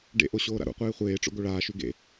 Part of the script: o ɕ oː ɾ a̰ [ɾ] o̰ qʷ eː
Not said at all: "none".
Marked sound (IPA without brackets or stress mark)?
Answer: ɾ